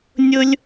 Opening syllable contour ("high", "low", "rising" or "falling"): high